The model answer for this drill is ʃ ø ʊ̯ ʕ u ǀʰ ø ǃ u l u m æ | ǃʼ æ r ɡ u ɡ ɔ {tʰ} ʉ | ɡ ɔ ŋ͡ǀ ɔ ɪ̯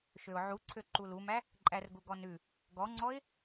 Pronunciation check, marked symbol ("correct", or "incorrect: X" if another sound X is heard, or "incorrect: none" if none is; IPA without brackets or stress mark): incorrect: n